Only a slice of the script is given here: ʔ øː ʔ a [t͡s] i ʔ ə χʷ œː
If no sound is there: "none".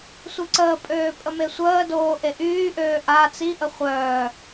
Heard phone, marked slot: t͡s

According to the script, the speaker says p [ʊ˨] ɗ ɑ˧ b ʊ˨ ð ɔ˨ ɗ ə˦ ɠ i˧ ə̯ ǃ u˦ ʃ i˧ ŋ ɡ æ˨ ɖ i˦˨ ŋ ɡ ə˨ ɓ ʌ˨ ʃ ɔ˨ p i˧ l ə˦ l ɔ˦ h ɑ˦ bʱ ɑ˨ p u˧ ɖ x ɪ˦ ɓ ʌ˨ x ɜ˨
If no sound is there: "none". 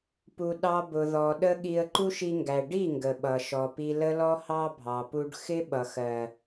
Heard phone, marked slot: u˨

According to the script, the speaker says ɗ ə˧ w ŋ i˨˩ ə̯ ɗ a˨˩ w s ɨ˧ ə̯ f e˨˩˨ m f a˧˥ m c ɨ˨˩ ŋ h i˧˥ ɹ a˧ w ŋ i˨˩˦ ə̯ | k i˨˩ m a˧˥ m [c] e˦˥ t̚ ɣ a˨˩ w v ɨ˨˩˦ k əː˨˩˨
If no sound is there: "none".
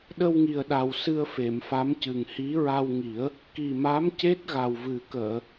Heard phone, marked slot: c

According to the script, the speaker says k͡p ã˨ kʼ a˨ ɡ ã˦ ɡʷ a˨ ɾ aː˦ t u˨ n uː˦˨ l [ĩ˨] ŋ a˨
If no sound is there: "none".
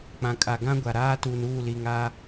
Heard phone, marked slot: i˨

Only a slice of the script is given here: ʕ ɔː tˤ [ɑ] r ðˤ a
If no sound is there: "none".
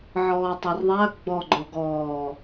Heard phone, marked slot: ɑ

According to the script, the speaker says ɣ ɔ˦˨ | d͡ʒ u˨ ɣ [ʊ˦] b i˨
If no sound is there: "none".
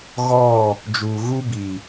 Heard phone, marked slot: u˦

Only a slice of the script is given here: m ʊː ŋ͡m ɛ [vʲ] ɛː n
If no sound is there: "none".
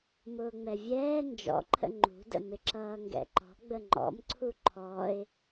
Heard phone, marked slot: vʲ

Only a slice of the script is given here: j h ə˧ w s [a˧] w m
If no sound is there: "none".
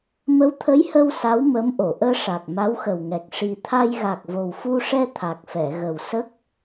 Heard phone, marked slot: a˧˥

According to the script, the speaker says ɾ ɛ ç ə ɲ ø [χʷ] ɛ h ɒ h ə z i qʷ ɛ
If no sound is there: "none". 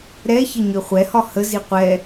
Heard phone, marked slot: χʷ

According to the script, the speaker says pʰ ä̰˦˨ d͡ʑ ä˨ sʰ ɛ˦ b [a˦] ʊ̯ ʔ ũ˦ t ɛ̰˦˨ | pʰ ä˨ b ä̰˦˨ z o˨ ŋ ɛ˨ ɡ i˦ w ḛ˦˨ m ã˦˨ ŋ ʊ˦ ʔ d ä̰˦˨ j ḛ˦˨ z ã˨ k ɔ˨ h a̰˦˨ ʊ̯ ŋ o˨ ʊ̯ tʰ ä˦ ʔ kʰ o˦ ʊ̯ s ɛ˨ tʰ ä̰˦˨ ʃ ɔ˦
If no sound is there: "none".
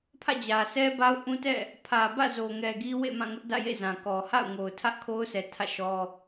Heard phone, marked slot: a˦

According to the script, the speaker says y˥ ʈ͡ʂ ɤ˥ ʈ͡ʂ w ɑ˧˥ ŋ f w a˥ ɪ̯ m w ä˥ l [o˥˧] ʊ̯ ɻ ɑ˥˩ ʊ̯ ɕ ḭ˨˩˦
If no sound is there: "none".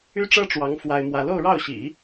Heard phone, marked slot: o˥˧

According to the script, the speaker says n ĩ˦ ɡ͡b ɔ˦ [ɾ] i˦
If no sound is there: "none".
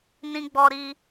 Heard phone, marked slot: ɾ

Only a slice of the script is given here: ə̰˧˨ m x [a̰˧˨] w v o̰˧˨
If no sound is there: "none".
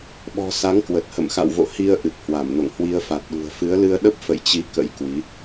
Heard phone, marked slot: a̰˧˨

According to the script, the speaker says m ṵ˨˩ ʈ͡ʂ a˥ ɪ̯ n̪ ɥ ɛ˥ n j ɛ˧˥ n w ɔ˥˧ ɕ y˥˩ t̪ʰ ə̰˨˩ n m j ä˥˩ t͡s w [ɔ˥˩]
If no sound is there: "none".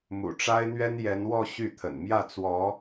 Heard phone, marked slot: ɔ˧˥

